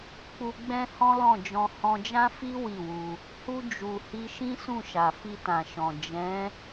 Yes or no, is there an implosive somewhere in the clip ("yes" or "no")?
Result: no